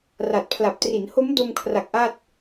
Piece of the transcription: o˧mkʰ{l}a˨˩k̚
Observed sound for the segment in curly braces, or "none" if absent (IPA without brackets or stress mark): r